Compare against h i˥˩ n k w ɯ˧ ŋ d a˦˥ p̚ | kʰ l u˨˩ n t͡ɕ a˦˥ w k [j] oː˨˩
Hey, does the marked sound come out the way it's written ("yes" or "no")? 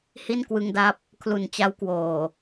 no